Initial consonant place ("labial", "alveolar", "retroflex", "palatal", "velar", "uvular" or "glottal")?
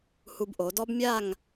glottal